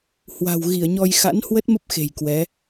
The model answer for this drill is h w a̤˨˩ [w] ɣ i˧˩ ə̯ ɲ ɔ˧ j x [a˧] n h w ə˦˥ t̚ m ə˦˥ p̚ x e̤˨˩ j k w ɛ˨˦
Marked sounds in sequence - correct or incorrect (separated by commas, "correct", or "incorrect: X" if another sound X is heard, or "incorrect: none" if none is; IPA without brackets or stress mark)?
correct, incorrect: a̰˧˥